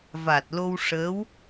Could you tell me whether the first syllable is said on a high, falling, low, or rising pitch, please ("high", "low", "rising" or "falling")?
low